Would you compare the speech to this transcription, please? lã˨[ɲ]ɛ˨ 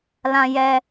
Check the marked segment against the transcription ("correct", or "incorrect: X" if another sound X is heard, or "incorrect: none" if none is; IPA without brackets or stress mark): incorrect: j